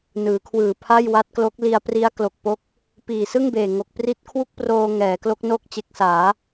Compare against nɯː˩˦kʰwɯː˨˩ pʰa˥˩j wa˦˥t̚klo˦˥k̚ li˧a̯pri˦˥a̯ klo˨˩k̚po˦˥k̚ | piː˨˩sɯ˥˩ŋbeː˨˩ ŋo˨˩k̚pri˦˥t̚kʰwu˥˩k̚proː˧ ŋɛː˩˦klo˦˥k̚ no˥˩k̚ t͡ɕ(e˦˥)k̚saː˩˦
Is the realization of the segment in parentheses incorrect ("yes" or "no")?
no